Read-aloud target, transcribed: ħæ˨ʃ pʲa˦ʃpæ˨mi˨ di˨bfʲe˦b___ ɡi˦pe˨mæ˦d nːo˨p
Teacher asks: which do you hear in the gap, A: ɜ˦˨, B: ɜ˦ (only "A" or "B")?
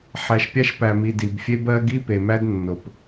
B